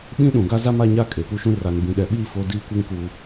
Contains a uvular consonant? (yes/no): no